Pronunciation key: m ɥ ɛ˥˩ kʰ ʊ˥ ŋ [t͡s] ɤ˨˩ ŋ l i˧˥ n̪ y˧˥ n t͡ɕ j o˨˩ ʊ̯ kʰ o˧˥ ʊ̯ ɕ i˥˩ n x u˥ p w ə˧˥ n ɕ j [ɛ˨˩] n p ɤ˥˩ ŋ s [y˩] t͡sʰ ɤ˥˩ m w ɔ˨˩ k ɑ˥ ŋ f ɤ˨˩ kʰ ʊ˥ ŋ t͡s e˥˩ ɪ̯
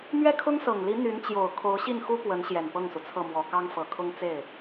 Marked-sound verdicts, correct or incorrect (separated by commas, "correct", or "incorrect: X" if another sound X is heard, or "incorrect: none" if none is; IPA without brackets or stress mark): incorrect: s, correct, incorrect: u˩